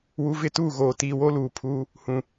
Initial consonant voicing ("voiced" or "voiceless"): voiced